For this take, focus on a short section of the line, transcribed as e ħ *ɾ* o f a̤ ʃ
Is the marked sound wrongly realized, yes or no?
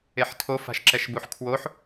yes